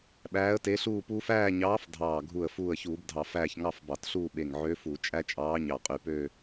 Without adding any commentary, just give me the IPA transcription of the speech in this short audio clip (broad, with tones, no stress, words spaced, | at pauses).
ɓæː˧˥ə̯te˧˥ɬuː˥˧puː˥f æː˥˧ɲɑː˧˥f dʱɑː˧˩ ɡʱu˧˩ə̯ fuː˧˩ə̯çuː˧˩˧bdʱɑ˧˩˧ fæː˥˧ç ŋɑ˥˧fbɑ˧˩˧tɬuː˥˧ ɓe˧˩ŋ ʕø˧˥fu˧˩˧ t͡ʃʼæ˥t͡ʃʼɑː˧˥ ɲɑ˧˩qʼy˧˩pø˥˧